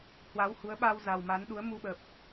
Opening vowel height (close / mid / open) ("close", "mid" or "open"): open